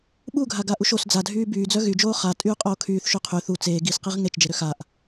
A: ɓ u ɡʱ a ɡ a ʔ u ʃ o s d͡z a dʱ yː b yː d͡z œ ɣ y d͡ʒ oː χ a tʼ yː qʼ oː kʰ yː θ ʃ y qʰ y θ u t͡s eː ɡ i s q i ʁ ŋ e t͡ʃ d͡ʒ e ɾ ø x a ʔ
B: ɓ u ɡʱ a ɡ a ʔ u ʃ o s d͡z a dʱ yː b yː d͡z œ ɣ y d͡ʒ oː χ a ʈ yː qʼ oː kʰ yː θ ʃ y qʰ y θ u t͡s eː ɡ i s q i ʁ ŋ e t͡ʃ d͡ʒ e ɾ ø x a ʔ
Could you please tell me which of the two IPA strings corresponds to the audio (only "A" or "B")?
A